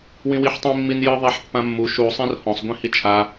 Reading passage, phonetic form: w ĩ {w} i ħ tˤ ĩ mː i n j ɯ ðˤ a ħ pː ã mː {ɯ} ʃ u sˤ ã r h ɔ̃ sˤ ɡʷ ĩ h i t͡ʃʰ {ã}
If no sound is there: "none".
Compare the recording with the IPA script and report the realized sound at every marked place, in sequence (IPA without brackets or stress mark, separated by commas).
w, u, a